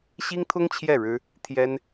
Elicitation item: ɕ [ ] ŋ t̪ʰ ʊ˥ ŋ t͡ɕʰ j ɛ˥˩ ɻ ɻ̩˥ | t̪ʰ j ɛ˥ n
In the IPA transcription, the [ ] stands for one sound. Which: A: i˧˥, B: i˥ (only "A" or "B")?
B